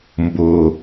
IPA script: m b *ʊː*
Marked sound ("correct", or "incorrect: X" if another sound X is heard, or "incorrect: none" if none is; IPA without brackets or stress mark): correct